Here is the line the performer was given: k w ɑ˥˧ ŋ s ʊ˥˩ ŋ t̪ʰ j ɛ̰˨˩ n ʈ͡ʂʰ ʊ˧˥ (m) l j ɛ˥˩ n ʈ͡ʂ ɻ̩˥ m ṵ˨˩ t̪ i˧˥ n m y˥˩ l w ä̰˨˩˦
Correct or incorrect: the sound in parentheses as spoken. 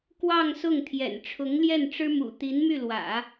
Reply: incorrect: ŋ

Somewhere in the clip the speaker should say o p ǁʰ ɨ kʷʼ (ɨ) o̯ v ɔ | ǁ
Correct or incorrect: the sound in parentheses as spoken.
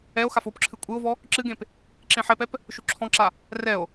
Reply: correct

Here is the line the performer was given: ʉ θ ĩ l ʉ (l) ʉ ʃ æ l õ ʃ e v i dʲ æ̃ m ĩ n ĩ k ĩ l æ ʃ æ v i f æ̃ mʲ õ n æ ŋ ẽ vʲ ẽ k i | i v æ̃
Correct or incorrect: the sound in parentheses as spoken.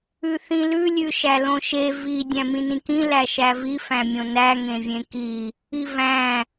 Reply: incorrect: lʲ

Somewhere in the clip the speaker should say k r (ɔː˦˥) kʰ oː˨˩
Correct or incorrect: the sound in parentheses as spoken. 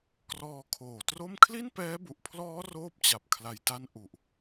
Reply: incorrect: ɔː˧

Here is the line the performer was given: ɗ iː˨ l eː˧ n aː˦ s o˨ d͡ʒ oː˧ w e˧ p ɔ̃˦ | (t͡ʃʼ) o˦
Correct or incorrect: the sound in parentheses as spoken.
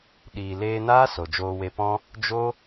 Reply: incorrect: d͡ʒ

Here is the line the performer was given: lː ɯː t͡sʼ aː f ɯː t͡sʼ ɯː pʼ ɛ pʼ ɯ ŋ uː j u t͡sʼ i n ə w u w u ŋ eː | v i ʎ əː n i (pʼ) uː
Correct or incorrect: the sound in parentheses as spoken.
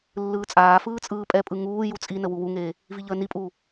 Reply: correct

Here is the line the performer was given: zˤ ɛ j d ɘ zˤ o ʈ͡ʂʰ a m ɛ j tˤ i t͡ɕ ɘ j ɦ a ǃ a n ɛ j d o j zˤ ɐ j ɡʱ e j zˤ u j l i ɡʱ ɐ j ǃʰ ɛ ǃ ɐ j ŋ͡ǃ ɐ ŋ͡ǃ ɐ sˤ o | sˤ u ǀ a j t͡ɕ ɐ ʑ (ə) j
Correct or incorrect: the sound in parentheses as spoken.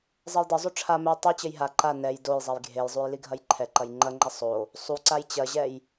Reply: incorrect: ɛ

